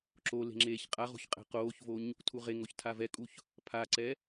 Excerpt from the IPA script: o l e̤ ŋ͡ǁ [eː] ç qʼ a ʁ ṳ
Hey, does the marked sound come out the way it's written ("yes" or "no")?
yes